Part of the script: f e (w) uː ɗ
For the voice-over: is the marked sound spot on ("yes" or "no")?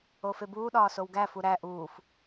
no